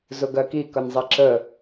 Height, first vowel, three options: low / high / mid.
high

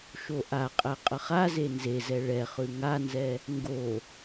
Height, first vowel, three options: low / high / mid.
mid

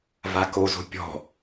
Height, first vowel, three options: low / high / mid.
low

